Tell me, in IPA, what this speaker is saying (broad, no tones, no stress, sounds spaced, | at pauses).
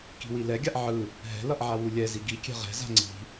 k i̤ w i l ɛ ɡʲ a ʔ ʕ ɯ | ɦ ɛ̤ l ʌ ʔ ʕ a w u lʲ ɛ z i ɡ i kʲ ɛ̤ ʁ ɛ̤ z a̤ ŋ͡ǀ i̤